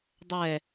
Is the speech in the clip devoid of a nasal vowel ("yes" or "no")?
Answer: yes